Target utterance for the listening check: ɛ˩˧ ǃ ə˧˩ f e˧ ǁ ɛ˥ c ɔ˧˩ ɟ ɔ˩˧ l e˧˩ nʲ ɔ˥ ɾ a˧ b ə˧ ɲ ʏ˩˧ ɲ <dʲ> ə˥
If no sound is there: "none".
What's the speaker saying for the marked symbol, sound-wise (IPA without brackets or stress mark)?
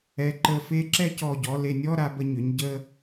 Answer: ɟ